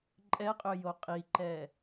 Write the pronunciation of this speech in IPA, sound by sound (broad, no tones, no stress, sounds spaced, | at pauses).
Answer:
ǃʼ ɛ qʼ ø j o qʼ i ǃ ɛ